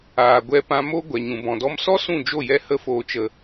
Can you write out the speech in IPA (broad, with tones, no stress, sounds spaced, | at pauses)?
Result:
aː˨ ɡʷ ɛ˧ p ã˧ m o˦ ɡʷ ɛ˨ ɲ ũ˨ b ɔ̃˨ d ɔ˦ m s ɔ˦ s ũ˦˨ d͡ʒ o˦˨ j ɛ˧ h ə˧ f oː˨ t͡ʃ ə˨